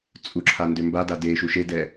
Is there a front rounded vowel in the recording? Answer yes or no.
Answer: yes